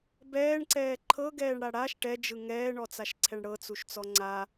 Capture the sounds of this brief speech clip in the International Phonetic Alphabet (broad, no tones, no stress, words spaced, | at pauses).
bɛːɳǀɛː ǃʰɤɡɛːɳɽa ɽaʃ ʈɛd͡ʒɯ ŋɛːɳɔt͡saʃǀʰɛɳ ɽɤt͡suʃt͡sɔ ŋ͡ǀa